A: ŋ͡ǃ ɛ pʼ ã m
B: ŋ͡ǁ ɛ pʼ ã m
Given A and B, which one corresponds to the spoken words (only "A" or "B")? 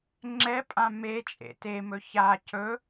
B